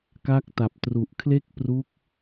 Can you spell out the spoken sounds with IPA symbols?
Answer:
ka˦˥k̚ta˨˩p̚tru˨˩ʔ kʰle˥˩k̚pru˦˥k̚

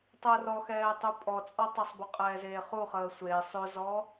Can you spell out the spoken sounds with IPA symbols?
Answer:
tˤəːrɔxɛːtˤu pʼɔt͡sʼɔtˤɵsˤbɵ qʼɛːzeːχu χəːsʷe sˤɵzɔ

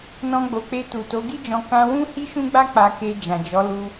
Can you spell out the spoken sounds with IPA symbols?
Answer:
nɔ̃˧ɡ͡bo˨k͡pe˧ tu˨to˨˦ɡi˦d͡ʒɔ̃˧ kã˧wũ˦ hi˦ʃũ˦ɡ͡ba˦ k͡pa˧ke˧ d͡ʒã˨d͡ʒɔ˨˦lu˧

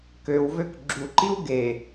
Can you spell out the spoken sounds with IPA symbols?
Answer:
køwvøk ɡ͡ǁuǃiw ɡe

